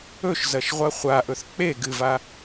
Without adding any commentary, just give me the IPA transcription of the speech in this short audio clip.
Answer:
ɵ ʃ z ɐ ʃ ʁʷ ɐ χʷ a ʔ ɵ θ k͡p e ɡ ɨ v a

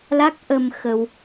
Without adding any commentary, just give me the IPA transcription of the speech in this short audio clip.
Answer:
l a˦˥ k̚ ʔ ə˧ m x ə˧ w

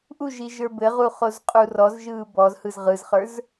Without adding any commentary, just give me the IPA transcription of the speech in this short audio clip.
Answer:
ʔ u ʒ i ʒ ə˞ b ɘ ʁ u χ o z qʼ u r ɔ z ʒ ɯː b ɔ z h ɯ z ʁ ɯ z χ ə˞ z

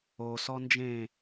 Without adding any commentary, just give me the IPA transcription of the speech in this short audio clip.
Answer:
o s ɔ n d͡ʒ ẽ

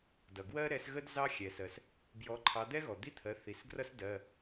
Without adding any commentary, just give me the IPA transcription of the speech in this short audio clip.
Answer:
d ʌ˩ ɡ w ɜ˥ ɾ ɛ˨˥ s ɣ ə˥ d z ɑ˥ xʲ ɛ˩ s ɜ˩ s | b j ɔ˨˥ ǃʰ ɑ˨˥ d̪ ɛ˥ ɣ ɔ˩ d̪ i˥ t̪ʰ ɜ˩˧˩ θ i˩ s ɡ r ʌ˥ s d ɜ˩˧˩

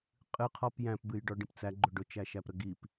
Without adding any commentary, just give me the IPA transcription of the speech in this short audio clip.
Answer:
qʼ ɨ qʰ ɔ p j æ̃ p b ɨ j ɖ ɔ ɖ ĩ p t͡s æ ɡ͡ǃ ʊ ɖ ʊ t͡ʃ æ ʃ æ p ɾ ə ɡ i p

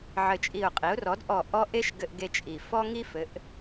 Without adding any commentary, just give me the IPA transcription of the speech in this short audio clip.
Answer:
ʕ ɘ˧˩ t͡ʃʼ i˧˩ ʊ̯ qʼ i˩˥ ʊ̯ r ɔ˩˥ d ʔ ɔ˧˩ ʔ ɔ˦ ʔ e˦ ʃ ɡ ɘ˦ ʔ ɡ e˦ t͡ʃʼ i˧˩ f ɔ˦ ŋ i˦ f ɘ˩˥ ʔ

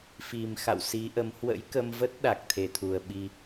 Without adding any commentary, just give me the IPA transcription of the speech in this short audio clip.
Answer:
f i˨˩ m x a̰˧˨ w s i˨˦ ʔ ə˨˦ m h w ə̰˧˥ j k ə˧ m v ə˦˥ t̚ ɗ a˨˩ k̚ t̪ʰ e˧˩ t̪ʰ u˨˩ ə̯ ɓ i˧

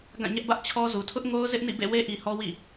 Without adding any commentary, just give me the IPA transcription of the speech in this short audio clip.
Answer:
ɡ ã˦˨ ɲ ɛ˦ ʔ b ä˦ ʔ t͡ɕʰ ɔ˦ z u˨ tʰ ʊ˦ ʔ ŋ o˦ ʊ̯ z ɪ˦ ʔ n ḭ˦˨ b ḛ˦˨ w e˦ ʔ i˨ h ɔ˦ w ḭ˦˨

